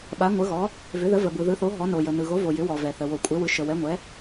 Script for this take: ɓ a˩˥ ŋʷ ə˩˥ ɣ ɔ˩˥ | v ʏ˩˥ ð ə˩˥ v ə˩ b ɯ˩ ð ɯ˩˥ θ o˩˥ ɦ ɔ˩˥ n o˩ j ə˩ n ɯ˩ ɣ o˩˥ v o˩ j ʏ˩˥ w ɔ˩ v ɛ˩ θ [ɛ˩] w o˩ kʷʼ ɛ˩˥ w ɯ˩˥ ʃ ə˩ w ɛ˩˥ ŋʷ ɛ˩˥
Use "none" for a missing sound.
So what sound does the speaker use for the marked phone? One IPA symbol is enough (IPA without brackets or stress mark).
ə˩